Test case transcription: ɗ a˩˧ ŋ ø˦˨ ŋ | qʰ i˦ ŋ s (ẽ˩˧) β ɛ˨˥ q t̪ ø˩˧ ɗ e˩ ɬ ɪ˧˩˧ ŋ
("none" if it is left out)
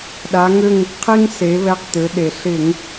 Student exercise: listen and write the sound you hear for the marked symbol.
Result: e˩˧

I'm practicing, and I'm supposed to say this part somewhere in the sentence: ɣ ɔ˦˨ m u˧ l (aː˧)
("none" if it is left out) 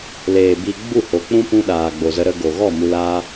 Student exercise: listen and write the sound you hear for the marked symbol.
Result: aː˦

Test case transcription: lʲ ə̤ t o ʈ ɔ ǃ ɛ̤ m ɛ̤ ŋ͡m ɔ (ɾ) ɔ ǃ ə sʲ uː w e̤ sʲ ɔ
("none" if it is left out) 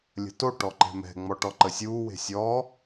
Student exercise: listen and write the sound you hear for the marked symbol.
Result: ʈ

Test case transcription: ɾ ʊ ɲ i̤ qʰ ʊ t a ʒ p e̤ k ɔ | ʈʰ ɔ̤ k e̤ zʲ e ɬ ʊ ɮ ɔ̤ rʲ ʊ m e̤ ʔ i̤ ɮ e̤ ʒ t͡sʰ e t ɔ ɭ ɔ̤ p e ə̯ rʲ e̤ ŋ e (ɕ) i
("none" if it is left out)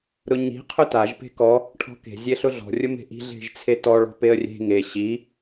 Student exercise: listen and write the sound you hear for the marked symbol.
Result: ɕ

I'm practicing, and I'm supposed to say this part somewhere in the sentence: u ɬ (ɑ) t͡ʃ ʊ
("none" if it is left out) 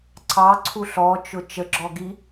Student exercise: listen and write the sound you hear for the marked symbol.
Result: ɔ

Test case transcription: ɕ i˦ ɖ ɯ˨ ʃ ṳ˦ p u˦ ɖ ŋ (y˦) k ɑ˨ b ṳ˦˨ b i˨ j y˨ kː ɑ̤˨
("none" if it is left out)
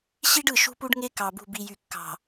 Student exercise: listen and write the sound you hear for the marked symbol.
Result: e˦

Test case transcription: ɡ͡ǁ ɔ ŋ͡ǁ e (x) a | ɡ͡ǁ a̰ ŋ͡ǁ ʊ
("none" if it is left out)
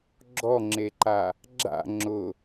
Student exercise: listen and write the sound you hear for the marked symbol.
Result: ǃ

